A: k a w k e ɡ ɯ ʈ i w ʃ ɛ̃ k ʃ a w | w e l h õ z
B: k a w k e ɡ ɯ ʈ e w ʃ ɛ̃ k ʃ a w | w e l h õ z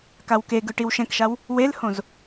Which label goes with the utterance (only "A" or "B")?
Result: A